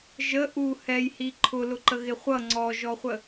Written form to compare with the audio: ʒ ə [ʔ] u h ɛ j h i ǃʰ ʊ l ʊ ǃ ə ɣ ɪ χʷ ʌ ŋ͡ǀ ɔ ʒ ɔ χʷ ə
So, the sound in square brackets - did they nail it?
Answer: yes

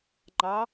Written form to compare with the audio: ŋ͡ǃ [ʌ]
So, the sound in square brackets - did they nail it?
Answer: no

